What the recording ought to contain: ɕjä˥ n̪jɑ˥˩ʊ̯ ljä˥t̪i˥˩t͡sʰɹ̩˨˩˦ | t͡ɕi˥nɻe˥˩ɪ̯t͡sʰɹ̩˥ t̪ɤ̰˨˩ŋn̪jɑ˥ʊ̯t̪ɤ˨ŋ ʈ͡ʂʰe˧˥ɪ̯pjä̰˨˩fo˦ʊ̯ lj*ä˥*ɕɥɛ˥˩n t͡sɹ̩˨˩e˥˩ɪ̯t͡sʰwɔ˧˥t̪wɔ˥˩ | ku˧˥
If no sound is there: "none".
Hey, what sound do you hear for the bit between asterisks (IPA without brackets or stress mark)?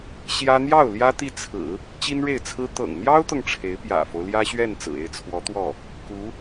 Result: ä˥